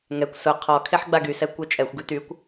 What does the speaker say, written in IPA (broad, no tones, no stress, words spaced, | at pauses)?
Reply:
ŋɛkʷ sʊ qʰɔ kʰeħɡ͡baɡysɛ kʷɛt͡ʃʼɛxʷ ɡytykʷ